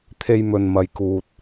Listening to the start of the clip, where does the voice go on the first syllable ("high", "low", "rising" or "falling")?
high